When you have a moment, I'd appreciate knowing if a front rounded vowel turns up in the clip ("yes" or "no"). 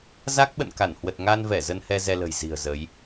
no